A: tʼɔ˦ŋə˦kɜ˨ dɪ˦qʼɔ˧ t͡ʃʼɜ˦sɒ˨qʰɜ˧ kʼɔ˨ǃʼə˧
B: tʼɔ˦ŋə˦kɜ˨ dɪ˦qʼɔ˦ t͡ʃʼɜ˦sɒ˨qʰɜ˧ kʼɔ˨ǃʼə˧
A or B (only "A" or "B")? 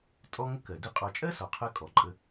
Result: A